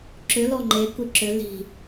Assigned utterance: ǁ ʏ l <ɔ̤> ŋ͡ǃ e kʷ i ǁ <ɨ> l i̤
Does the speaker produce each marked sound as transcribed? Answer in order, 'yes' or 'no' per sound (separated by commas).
no, no